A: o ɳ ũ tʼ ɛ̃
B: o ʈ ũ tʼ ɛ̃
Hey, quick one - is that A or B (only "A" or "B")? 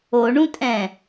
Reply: A